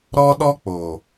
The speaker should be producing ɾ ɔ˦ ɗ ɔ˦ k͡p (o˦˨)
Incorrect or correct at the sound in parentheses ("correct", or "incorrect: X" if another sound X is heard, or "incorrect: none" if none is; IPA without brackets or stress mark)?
incorrect: o˨